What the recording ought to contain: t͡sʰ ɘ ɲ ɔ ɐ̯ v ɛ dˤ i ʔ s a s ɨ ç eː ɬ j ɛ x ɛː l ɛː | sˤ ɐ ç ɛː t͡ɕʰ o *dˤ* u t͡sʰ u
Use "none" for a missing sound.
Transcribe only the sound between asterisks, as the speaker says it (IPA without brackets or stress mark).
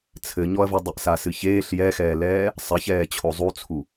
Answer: zˤ